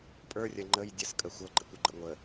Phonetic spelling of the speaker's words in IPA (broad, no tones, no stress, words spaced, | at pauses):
pʼə˞rʲɐ ŋ͡ǃəj dʲəskʼə xʷɤɡ͡ǃə̰kʷəɡ͡ǃə̰ ŋʷə